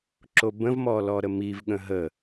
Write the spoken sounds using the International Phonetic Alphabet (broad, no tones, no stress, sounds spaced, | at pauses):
ǁ o b ə̃ v m ɔ l ɔ ɾ ə m i v ɠ ə̃ ɦ ə